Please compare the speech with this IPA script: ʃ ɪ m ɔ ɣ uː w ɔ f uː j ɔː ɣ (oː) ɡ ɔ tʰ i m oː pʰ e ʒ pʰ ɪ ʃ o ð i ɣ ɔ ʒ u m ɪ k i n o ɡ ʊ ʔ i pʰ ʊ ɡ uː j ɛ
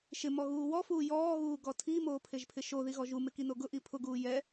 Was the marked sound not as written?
yes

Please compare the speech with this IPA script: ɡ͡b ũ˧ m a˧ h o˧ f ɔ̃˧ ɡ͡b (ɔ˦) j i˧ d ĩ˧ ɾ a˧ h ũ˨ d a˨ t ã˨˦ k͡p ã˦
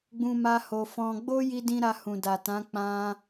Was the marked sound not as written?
yes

